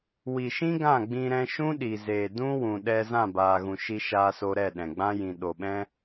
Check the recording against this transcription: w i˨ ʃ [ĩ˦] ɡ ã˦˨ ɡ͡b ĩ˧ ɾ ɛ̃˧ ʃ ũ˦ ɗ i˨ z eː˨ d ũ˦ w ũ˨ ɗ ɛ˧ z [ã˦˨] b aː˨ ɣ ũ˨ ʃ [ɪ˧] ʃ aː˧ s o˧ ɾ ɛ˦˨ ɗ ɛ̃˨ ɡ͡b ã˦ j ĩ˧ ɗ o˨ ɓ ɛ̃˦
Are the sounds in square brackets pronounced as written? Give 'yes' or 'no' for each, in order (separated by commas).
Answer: yes, yes, no